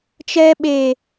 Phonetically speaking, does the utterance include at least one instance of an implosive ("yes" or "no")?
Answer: yes